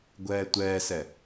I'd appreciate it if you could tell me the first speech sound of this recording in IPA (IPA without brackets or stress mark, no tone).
ɡʷ